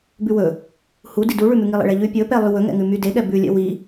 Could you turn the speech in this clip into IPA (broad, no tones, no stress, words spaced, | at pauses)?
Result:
bʉwɵ | hudi duɭʉmʉ ŋilˠḛɭɛʎʉ pʲɵpɛlˠy wɵŋɛ̰ŋʉmy deɠɛ bʉlʲɛ̰ wi